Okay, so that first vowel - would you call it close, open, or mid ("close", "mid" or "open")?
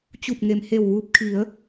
close